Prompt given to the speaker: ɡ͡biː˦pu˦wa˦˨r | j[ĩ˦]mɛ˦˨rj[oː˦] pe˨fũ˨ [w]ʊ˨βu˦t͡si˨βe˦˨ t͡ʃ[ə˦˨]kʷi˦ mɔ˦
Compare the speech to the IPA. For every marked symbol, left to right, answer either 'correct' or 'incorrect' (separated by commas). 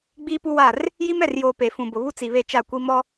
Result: incorrect, incorrect, incorrect, incorrect